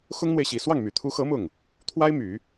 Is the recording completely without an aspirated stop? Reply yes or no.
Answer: no